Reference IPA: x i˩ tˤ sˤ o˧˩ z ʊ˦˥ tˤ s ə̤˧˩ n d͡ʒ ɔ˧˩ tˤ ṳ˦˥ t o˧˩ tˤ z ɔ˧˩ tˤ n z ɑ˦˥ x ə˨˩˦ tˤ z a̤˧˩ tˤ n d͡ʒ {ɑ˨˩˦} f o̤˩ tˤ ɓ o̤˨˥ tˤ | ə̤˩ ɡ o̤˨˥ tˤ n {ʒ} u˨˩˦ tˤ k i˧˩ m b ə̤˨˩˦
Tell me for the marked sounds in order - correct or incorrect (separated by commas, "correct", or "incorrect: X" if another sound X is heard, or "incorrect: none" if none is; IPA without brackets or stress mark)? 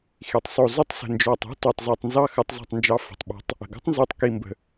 incorrect: ɑ˨˥, incorrect: z